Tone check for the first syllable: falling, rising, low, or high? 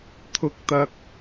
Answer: rising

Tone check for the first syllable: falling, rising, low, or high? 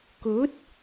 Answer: rising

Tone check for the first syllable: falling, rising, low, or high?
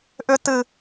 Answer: high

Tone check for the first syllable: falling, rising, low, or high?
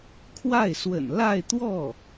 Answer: falling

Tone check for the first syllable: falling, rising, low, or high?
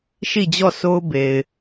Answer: falling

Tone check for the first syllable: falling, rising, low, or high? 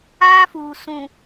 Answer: high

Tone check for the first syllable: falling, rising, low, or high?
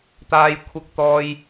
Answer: high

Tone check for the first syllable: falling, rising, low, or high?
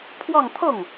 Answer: falling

